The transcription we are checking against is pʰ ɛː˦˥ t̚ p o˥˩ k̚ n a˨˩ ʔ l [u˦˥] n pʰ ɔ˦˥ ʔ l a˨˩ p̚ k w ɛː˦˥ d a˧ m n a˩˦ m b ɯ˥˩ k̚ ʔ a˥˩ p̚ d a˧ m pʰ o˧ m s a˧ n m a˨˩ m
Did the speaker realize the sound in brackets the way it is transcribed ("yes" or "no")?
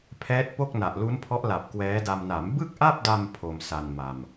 yes